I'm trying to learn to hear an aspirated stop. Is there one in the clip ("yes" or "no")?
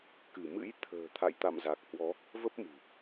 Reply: yes